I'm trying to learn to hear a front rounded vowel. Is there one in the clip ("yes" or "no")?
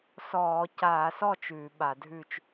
no